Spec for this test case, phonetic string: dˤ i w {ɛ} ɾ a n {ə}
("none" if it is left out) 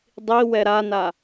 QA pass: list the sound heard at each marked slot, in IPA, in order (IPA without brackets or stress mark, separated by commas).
ɛ, a